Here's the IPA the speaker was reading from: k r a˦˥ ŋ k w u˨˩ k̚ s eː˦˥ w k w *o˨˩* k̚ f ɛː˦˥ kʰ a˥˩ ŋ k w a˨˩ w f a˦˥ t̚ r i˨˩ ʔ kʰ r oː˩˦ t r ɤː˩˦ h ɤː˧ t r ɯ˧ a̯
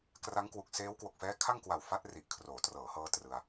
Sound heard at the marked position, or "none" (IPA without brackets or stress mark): o˨˩